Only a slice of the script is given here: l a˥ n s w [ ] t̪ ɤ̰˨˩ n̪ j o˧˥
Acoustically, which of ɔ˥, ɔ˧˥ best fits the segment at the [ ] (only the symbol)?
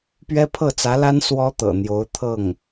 ɔ˥